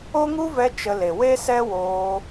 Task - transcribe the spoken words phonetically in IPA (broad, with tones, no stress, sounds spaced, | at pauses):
o˦ ŋ u˦ v ɛ˧ t͡ʃ ə˧ l e˨ w e˦ s ɛ˦ w oː˧